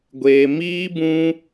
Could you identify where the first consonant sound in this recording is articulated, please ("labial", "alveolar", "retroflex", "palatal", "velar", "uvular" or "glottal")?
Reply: velar